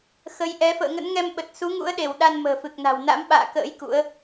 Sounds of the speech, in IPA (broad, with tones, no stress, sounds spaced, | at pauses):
x ə˨˦ j ʔ ɛ˨˦ f ə̰ː˧˨ ŋ ə̰˧˥ n ŋ ɛ˧ m ɓ ə˨˩ t̚ s u˨˦ ŋ ṵ˧˥ ə̯ ɗ e˧˩ w ɗ a˧ n m ə̤ː˨˩ f ɨ˨˩ k̚ n a̤˨˩ w n a̰˧˥ m ɓ a̰ː˧˨ k ə̰ː˧˥ j k ṵ˧˥ ə̯